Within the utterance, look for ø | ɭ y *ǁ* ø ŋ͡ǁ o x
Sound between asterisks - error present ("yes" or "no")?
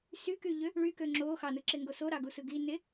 yes